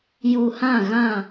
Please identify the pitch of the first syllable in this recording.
low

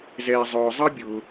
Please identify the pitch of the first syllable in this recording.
low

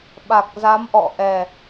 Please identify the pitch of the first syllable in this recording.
low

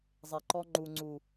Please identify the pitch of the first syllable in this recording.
low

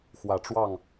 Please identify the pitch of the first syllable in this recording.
low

